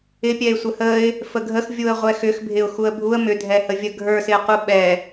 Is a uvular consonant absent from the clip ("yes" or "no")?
no